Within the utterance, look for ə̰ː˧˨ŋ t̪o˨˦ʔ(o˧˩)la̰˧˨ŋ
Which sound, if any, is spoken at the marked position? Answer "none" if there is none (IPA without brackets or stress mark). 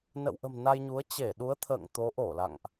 o˧˩